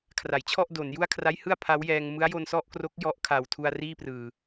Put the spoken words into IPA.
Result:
kʰra˩˦jt͡ɕʰɔ˥˩ʔ do˩˦n ju˥˩a̯kʰra˦˥jhɯ˥˩a̯ pʰa˦˥wjɛː˧ŋ mɯ˦˥a̯jo˧nsɔ˥˩ʔkro˦˥k̚ jɔ˦˥ʔkʰa˨˩wtʰu˧a̯ riː˥˩prɯː˨˩

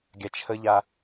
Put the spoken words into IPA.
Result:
ɡʲat͡ʃʰəʎa

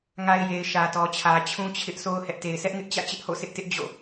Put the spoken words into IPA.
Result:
ŋa˨ɪ̯ je˨ɪ̯ʃä˨tɔ˨t͡ɕʰä˨ t͡ɕʰũ˦t͡ɕʰɪ˦ʔ so˦ʊ̯hɛ˦ʔ te˨ɪ̯sɛ˦ʔŋɪ˦ʔ t͡ɕä̰˦˨t͡ɕɪ˦ʔho̰˦˨sʰɪ˦ʔ tɪ˦ʔ d͡ʑo̰˦˨

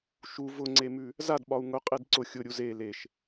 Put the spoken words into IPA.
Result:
ʃu vʊŋ͡ǀemʉ | zadɓɒu̯ ŋʊ qʼedǀʊ xʲʊɾʲu ze leʃ

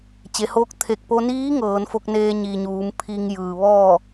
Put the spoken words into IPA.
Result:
t͡ɕe˩˧hoː˧˥k̚ t̪ʰe˧˩k̚po˧niː˧˥ ŋɤː˩˧n fo˧k̚neː˧ɲiː˩ ɲuː˩˧mpʰi˧ŋjɯː˩ ʋɔː˥˨

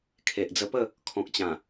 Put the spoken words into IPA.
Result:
kʰe˨ʔd͡zə˧pə˥˧ | kʰɔ̃˨k̚t͡ɕã˨˩

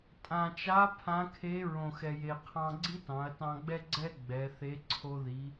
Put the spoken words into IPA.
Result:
tʼã˩t͡ʃa˧˥ pʰã˧˥kʰe˧˥ ɹõ˩xɛ˩je˩ qʰɑ̃˧ɡ͡ǀi˥tɑ̃˩˧ɐ̯ tɑ̃˧ɡ͡bɛ˥ ɡ͡ǀɛ˥ ɡ͡bɛ˩˧θe˧˥ ǀʰo˧ði˩˧

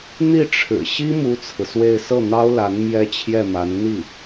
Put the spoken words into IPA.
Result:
n̪i˥˩ʈ͡ʂʰɻ̩˨˩ ɕi˥ mu˥t͡sʰɹ̩˨swe˥˧ɪ̯ sɤ˥˩n̪ɑ˥ʊ̯la˧˥n mjɛ˥t͡ɕʰjɛ˥˩ma˧˥n n̪i˥˩

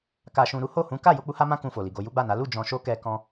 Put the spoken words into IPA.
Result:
ka˨ʃũ˨ ɾu˨˦ho˦˨hũ˨˦ ka˦˨jo˧ k͡pu˦ha˦mã˦ kũ˧fo˨li˨ɡo˧ ju˦ɡ͡ba˦˨na˨˦ lu˦˨ d͡ʒɔ̃˧ ʃo˦kɛ˧kɔ̃˧

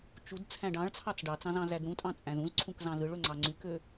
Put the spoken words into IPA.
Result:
t͡ʃud t͡sʰæ̃ɖɑ̃ɭt͡sʰɑt͡s ɖɑt͡sɑ̃z ɑ̃zædɾũtʼɑ̃ t͡sʼæ̃zũzǀʰũk zɑ̃zɯɭø ŋ͡ǀɑŋ͡ǀykø

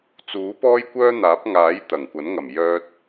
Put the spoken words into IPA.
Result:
t͡suː˨˥ pɔː˥jkʷœː˥n̪aː˨˥p̚ŋaː˨˥j t̪ɐ˨˩ŋkʷɐ˨˥nŋɐ˨˩m jœː˧t̚

